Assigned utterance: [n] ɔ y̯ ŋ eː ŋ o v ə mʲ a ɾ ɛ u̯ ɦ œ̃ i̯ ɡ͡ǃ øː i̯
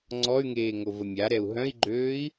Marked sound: incorrect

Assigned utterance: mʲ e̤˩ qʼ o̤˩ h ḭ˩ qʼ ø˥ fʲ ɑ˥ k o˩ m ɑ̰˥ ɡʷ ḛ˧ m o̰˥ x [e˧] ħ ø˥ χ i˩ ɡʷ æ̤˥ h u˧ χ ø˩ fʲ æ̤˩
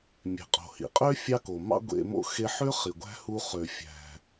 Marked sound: correct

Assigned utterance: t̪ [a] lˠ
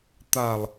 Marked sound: correct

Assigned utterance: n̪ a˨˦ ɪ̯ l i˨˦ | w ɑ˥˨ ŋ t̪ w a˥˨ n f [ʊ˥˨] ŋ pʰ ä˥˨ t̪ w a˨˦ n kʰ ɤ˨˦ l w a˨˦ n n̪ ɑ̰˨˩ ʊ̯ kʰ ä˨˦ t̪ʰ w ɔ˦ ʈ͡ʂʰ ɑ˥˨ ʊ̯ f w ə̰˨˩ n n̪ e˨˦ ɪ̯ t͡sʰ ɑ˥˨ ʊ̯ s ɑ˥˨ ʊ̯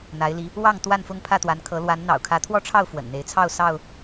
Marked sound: correct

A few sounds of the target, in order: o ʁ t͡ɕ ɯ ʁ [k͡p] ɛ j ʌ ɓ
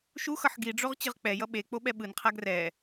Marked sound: correct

